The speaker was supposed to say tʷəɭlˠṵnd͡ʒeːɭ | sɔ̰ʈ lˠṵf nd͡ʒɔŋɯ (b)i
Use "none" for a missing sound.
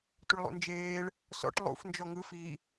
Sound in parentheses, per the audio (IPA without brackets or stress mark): f